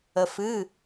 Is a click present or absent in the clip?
absent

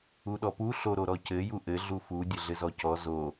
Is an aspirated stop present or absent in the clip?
absent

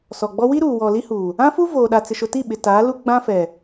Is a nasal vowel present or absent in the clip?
present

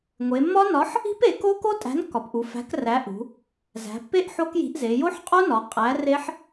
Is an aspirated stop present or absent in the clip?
absent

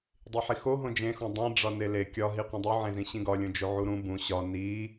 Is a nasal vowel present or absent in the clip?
present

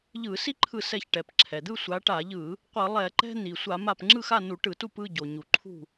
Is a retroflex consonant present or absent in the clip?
present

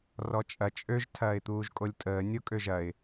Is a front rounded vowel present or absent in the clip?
present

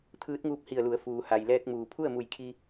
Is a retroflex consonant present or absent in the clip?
absent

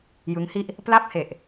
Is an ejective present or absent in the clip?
absent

